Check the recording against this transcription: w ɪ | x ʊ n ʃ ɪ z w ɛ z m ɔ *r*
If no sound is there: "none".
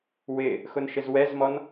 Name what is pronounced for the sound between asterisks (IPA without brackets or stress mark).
n